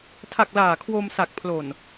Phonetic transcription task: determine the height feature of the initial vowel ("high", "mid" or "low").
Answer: low